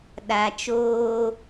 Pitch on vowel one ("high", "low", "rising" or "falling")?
low